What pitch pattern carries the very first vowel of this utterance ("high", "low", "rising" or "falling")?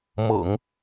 low